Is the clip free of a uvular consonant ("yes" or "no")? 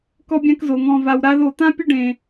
yes